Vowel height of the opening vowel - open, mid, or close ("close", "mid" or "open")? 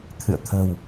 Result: close